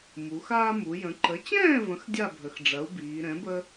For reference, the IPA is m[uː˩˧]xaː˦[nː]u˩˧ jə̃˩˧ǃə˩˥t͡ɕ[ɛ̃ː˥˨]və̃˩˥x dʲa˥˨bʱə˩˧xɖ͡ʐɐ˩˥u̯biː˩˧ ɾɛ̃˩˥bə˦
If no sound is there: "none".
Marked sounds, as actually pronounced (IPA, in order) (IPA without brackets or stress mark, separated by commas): u˩˧, m, ɛ̃ː˥˨